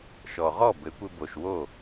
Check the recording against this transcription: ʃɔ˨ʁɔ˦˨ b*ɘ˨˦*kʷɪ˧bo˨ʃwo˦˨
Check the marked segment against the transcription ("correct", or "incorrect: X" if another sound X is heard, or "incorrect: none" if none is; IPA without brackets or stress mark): correct